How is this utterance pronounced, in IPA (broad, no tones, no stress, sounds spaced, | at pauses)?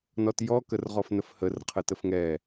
n ɔ t j ɔ k ə r ʁ ɔ f n ə f h ə r qʰ ə t ə f ŋ ɛ